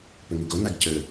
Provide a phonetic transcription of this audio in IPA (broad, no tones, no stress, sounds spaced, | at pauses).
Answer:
p ɵ ŋ u ɡ o n a ɡ c ɵ